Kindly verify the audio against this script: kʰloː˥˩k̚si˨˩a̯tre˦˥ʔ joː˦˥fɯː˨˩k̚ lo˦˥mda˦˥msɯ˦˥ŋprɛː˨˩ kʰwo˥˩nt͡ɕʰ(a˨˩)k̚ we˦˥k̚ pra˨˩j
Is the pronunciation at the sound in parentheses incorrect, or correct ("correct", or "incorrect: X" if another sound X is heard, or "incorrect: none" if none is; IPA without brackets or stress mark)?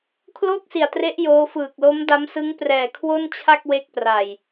incorrect: a˥˩